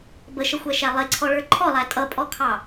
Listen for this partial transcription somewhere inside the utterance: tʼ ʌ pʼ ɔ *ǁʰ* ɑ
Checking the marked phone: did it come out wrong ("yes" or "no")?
yes